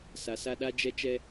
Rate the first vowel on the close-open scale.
open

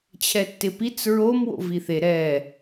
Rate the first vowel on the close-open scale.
mid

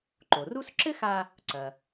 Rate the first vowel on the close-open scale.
mid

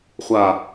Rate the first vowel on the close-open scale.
open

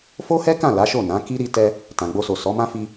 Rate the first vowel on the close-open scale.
mid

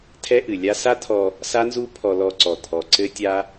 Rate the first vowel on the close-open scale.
mid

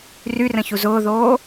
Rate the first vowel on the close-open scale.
close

